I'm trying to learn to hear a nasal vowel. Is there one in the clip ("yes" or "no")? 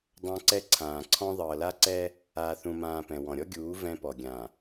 yes